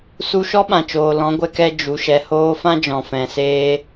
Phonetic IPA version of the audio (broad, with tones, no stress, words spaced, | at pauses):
su˧ʃɔ˦ɓã˨t͡ʃoː˨ lɔ̃˨˦ɡʷɛ˧kɛ˧ d͡ʒu˨ ʃɛ˨hoː˧fã˦ d͡ʒɔ̃˨fɛ̃˨seː˦